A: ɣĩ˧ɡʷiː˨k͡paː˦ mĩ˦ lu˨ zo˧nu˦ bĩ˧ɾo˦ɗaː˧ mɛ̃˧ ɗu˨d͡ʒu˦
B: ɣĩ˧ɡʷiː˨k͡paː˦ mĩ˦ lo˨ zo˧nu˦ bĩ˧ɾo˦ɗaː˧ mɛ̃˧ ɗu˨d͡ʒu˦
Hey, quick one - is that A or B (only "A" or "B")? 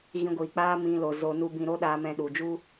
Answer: B